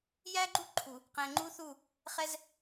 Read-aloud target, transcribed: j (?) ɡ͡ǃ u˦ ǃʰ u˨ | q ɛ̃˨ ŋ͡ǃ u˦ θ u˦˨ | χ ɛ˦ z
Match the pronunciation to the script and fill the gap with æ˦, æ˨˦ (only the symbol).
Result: æ˦